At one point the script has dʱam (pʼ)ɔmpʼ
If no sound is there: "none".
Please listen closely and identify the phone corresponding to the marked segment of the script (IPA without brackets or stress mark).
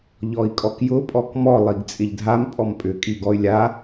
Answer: pʼ